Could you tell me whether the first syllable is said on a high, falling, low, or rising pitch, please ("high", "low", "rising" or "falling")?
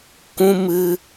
high